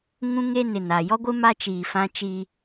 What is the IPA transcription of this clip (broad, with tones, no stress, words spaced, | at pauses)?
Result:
ŋũ˦ŋe˦nɪ˨n a˨jɔ˦ɡʷɪ˦ ma˦t͡ʃiː˨fã˦ t͡ʃiː˦